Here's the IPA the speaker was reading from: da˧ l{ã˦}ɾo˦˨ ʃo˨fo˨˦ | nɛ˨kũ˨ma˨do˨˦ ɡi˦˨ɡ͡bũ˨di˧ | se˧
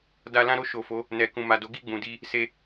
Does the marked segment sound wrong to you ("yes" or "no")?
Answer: no